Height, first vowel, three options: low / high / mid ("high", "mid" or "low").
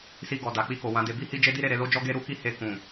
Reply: high